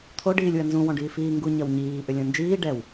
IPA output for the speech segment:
t̪ʰ o ɖ iː lʲ w ɐ n z ũ w ɔ̃ ɖ iː f iː ŋ ɡ u ɲ ɐ w ɲ iː ʔ ʏ lʲ ɔ̃ n d͡ʒ iː ɖ ɛ w

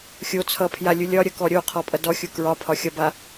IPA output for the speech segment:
xʲ o t͡sʰ ʌ pʰ j a lʲ u lʲ ɒ ɾʲ ʌ k ɔ ɾʲ o qʰ ɔ pʼ ʌ d ɔ xʲ u k ɹ ɒ pʰ ɒ xʲ ɒ b a

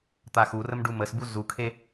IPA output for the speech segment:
t̪ a x u r ə m ɖ u m ə s b u z u kʰ e

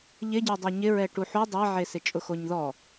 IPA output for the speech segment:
ʎ ɪ ɟ e dˤ e ɲ ɪ ɹ ɛ ʈ u ħ u dˤ a ʕ e s ɪ t͡ʃʼ ʊ x o ɲ ð ɔ

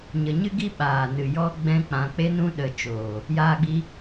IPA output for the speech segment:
ɲ ə˧ ɲ ɨ˦ ɡ i˦ ɓ aː˨ n ɨ˨ j ɔ˦ ɡ͡b ɛ̃˦ k͡p ã˧ k͡p e˧ n ũ˧ ɗ ə˨ t͡ʃ oː˨ | j aː˦ ɡ͡b i˦

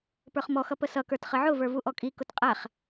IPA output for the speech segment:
p ə˞ χ m ɔ x ʌ p ə s ʌ k ə˞ t χ ə ʕ ʊ v ə˞ v u ʔ ɔ kʼ i k ʊ t qʼ æ χ

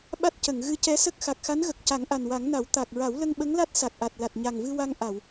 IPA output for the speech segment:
ɓ a˦˥ t̚ c ə˨˩˨ ŋ ɣ ɨ˧˥ c ɛ˧˥ s ə˦˥ k̚ x a˨˩ k̚ x a˧˥ n ɣ ə˨˩ k̚ c a˨˩˦ ŋ ʔ a˨˩ n w a˨˩˦ ŋ n a˨˩˦ w t̪ a˨˩ k̚ ɹ a˨˩˦ w l ə˧ ŋ ɓ ə˧˥ ŋ l a˦˥ t̚ s a˨˩ k̚ ʔ a˨˩ t̚ l a˨˩ t̚ ɲ a˨˩ ŋ v ɨ˧ w a˧ ŋ ʔ a˨˩˨ w

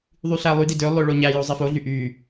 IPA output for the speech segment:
ðˤ y ɬ æ lˠ y d i d ø lˠ ø ɭ o ɲ æ j o zˤ i f o ɮ y ʔ y

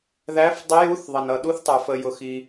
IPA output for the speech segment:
ð æ˧˥ f dˤ ə˧˥ j u˧˥ θ ðˤ ʌ˩ n ʌ˩ ɗ u˧˥ θ tˤ ə˞˩ f ə˩ j ʊ˩ x i˩

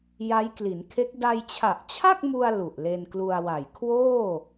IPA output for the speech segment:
j a˦˥ j k l i˩˦ n kʰ e˦˥ k̚ d a˧ j t͡ɕʰ a˨˩ ʔ t͡ɕʰ a˥˩ k̚ m u˧ a̯ l u˨˩ ʔ l e˧ n k l u˧ a̯ w a˨˩ j kʰ w oː˥˩

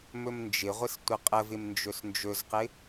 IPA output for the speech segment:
m ɵ m n d͡ʒ ɪ ʁʷ ɪ s tʷ ə qʼ ə v ɪ m n d͡ʒ ɵ s n d͡ʒ ɵ z q ɪ

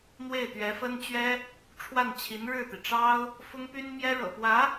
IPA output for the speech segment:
n̪ w e˥˩ ɪ̯ t̪ ɥ ɛ˧˥ f ə˥ n t͡ɕ ɥ ɛ˥ | ʈ͡ʂʰ w a˥˩ n t͡ɕʰ i˧˥ n ɻ ɻ̩˥˩ t̪ i˩ ʈ͡ʂ ɑ˥ ʊ̯ | f ʊ˥ ŋ p y˥ n m j ɛ˥ ɻ ɤ̰˨˩ p w ä˧˥

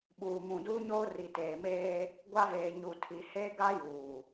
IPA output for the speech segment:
ɓ uː˨ m ũ˨ d uː˦ ɲ oː˦ r i˨ t eː˨ m eː˦ | ɡʷ a˦ v eː˨ ɲ u˨ tʰ i˨ h eː˦ ɡ a˦ j uː˨

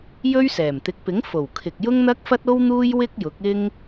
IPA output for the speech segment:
j ɵ˥ ɥ s ɛː˨˩ m t̪ ɪ˨˥ k̚ p ɪ˨˥ ŋ f o˨˩ w kʰ ɪ˨ k̚ j ʊ˥ ŋ n̪ ɐ˥ k̚ f ɐ˥ t̚ o˥ w n̪ uː˥ j w ɪ˥ k̚ j ʊ˨˥ k̚ ɪ˥ ŋ

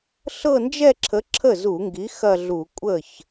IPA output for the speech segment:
ɬ ɤ˥˧ n d͡ʒ ɛ˥˧ ǁʰ ə˨˥ ǁʰ ə˥˩ z u˧˩˧ ŋ ɡ i˨˥ x ɐ˥˧ ɮ u˧˩˧ kʷʼ ə˥˩ ç

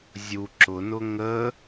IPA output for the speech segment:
zʲ u ǁ ʊ n ʊ ŋ ə

